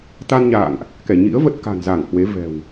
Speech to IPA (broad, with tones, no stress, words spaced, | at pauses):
t̪a˧nɲa̰ː˧˨ŋʔ | kɛ˧˩ɲḭ˧˥ə̯və˦˥t̚ ka̤˨˩nza˧˩ŋhwe˨˦ vɛ̤˨˩w